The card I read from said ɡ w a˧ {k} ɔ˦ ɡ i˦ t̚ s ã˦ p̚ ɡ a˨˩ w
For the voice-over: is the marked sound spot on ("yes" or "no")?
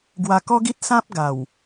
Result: yes